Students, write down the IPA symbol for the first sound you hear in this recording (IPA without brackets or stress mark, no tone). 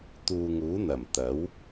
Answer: t̪